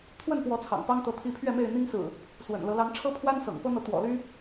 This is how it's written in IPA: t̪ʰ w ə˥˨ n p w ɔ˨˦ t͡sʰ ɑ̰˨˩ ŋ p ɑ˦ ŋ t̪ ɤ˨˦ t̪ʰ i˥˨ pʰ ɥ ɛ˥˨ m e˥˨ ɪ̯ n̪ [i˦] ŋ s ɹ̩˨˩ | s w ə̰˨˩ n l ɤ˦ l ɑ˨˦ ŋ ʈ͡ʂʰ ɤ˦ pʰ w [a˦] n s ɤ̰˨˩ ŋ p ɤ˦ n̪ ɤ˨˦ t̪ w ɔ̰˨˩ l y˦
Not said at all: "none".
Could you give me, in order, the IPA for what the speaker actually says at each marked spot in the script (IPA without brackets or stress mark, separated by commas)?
i˦, a˦